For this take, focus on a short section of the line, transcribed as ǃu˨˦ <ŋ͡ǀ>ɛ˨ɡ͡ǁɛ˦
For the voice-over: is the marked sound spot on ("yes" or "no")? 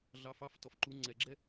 yes